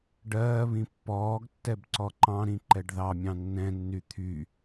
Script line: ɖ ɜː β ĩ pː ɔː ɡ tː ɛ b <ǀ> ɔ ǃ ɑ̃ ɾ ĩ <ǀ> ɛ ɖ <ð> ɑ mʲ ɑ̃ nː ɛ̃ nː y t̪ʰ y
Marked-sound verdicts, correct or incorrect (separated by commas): correct, incorrect, correct